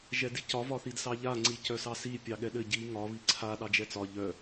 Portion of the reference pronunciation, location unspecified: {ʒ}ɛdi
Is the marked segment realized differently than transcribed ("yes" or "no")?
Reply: no